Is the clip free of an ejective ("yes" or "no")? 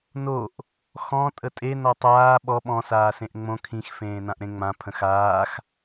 no